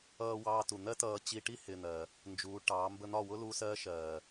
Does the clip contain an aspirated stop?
no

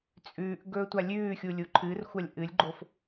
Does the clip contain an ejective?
yes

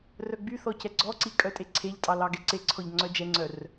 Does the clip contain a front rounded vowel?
yes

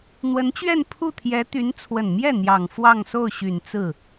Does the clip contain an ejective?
no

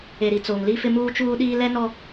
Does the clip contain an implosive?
yes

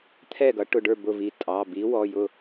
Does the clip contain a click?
no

